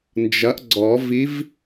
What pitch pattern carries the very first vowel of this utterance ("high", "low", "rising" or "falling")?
rising